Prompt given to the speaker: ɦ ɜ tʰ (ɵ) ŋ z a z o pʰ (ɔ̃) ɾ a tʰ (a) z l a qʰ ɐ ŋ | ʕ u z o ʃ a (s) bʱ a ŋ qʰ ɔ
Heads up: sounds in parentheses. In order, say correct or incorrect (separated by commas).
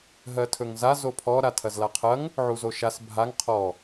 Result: correct, incorrect, incorrect, correct